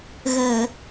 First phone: ɣ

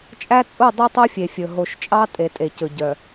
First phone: t͡ʃʼ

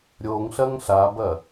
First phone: ɾʲ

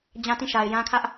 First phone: d͡ʑ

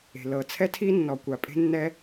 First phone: e̤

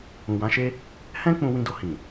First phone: ũ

